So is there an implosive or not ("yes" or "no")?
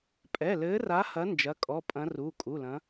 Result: no